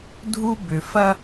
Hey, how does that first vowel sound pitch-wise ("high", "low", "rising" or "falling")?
high